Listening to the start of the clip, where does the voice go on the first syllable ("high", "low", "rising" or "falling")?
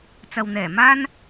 low